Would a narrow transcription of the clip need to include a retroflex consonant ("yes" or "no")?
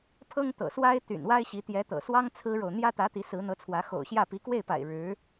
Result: yes